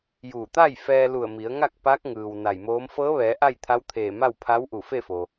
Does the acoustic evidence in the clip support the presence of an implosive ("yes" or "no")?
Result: no